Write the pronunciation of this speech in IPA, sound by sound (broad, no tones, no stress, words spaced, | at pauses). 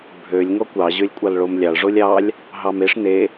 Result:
bʱølʲ ŋɔkʷɑ ʑølʲkʷʼɑlɭomlʲɑɭ ʐolʲɑlʲ | ɦɑmeʂ ne